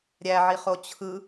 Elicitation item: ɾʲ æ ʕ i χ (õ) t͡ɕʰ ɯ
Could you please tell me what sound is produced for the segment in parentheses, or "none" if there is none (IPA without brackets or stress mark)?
o